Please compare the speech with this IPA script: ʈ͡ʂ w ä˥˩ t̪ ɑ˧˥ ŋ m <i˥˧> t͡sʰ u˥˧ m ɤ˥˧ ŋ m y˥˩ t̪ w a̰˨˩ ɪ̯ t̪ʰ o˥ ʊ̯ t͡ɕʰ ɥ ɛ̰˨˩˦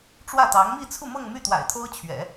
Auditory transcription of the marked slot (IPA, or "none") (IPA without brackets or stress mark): i˥˧